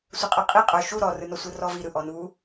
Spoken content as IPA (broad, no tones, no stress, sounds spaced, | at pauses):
sʷ ə qʼ ɯ qʼ i qʼ œ ʃ u ɾ ɔ r ɯ n ɔ sʷ ɯ r ɔ v i ɾ ɯ ʔ ɔ n u